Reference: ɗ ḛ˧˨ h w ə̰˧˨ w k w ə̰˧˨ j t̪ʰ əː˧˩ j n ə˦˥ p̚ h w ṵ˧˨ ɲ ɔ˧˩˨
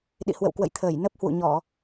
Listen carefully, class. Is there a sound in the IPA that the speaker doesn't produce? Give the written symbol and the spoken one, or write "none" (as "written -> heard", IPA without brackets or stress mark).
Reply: ḛ˧˨ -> ḭ˧˨